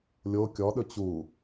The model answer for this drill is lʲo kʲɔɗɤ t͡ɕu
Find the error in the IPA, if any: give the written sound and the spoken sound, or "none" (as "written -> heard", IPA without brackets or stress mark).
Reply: ɤ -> ɵ